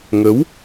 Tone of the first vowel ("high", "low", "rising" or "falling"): rising